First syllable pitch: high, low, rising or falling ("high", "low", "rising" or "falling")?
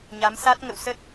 rising